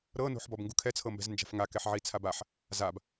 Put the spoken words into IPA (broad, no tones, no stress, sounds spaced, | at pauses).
ɾ ɤ n o̤ ħ b ɔ b ŋ ɡ u kʰ ɛ t͡sʰ ɤ m b ɛ̤ z n d͡ʒ a̤ f ŋ a k ɛ ħ ʕ i t͡sʰ a b a ħ | z a b